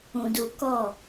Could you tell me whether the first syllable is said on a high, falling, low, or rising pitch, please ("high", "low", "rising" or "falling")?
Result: low